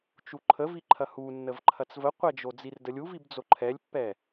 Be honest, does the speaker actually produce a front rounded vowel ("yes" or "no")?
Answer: no